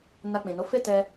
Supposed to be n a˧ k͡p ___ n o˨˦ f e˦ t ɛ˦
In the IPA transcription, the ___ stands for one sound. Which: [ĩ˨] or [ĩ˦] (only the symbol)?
ĩ˨